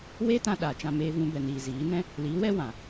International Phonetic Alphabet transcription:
weː˦tã˧ ɗaː˨t͡ʃã˧ meː˧vũ˧ bɛ˨niː˨ ziː˨˦nɛ̃˦ | liː˨˦wɛ˦wã˨

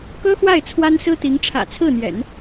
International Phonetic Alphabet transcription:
kɤ˥xwa˥˩ɪ̯ t͡sʰwa˥nsɹ̩˥t̪i˧˥ŋ ʈ͡ʂʰä̰˨˩t͡sʰɹ̩˥˩n̪jɛ̰˨˩˦n

